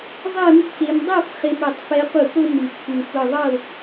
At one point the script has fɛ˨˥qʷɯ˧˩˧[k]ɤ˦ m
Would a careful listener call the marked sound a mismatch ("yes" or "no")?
no